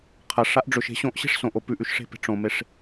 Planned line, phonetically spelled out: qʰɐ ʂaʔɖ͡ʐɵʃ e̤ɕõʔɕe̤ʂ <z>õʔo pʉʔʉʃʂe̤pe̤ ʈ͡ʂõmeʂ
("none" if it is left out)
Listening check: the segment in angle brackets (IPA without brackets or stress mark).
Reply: s